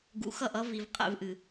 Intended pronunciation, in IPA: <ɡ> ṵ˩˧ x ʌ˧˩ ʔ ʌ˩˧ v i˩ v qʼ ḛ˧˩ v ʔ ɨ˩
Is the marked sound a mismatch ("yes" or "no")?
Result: no